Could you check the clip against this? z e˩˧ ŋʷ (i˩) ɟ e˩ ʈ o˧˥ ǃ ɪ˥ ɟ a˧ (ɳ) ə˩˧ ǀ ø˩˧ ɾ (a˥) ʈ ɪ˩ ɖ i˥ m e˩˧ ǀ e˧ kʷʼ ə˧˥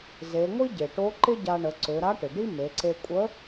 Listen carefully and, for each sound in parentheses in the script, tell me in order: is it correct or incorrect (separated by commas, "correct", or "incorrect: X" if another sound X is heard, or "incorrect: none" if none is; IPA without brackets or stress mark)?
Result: incorrect: i˥, correct, incorrect: a˧˥